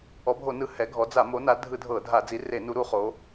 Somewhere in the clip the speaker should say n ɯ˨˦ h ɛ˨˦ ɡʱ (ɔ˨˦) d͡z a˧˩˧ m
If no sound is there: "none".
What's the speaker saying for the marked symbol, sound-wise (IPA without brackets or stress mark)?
ɔ˨˦